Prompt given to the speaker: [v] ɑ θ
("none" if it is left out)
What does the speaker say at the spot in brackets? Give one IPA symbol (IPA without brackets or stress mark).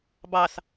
b